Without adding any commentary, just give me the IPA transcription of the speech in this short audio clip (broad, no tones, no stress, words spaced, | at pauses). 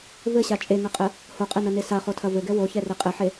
vɘɕa t͡ʃʼeŋɐqʼɘ | hoqʼɘnɐne saχotʰɐ vɘɡɛ woçɛre qʼɘħe